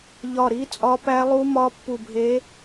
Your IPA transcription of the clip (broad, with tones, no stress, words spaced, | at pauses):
ʎɒ˧˩ɾi˧˥ t͡sʼɒ˧˥pæ˧˥lˠu˧˥mɒ˧˥ pːu˧˩bʱe˧˥